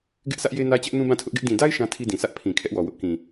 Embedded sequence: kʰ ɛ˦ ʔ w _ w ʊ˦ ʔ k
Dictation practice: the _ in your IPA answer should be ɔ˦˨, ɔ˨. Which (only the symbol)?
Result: ɔ˨